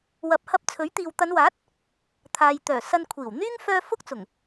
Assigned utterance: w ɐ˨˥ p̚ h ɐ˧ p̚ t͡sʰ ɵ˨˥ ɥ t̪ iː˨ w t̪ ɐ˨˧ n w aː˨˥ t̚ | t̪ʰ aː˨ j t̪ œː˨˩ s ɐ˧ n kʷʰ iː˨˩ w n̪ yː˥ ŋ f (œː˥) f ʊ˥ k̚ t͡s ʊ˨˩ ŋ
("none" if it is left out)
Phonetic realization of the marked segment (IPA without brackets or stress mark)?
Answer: œː˥